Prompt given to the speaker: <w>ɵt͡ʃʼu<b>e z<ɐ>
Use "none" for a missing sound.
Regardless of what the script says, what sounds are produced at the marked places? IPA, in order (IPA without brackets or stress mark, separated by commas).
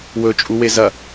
w, w, ɐ